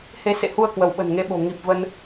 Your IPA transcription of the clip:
h e˧ s ḛ˧˨ h u˧ ə̯ k w ə˧˩ w ɓ ə̤˨˩ n ŋ e˧ ɓ o̤˨˩ ŋ i˨˩ p̚ v ə˧ n

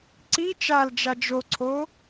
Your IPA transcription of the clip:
ǀ i t͡ʃ a l d͡ʒ a d͡ʒ o ǀʰ o

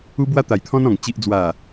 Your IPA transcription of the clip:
u˧ b w a˧ t̪ a˨˩ j t̪ʰ ɔ̃˧ n ɔ̃˨˩ ŋ t͡ɕ i˨ ʔ d͡z w a˨˩

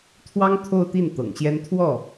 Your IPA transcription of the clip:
t̪ʰ w ɑ˥ ŋ t̪ʰ o˥˧ ʊ̯ t̪ i˥˩ n t̪ ɤ̰˨˩ ŋ ɕ j ɛ˥ n t̪ʰ w ɔ˥˩

